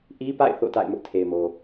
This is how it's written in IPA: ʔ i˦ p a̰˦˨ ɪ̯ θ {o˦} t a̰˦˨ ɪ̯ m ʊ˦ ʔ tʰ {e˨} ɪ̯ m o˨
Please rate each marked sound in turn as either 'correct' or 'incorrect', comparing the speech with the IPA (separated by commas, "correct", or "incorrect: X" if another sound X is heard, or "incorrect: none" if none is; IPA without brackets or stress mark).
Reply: incorrect: o̰˦˨, correct